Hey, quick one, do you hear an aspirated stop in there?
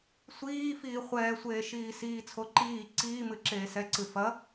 yes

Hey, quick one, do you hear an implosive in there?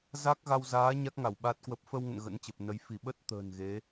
yes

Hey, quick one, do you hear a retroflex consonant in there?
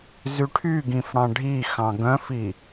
yes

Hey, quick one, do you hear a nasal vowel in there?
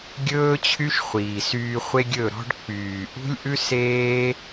no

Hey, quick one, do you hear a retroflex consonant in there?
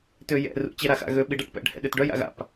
yes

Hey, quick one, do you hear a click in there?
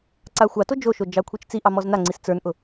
yes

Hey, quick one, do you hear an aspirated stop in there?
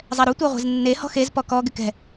no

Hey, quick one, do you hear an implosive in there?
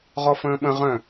yes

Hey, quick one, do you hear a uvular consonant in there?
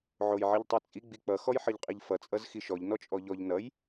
yes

